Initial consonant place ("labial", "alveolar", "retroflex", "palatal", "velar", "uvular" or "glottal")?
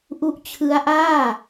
glottal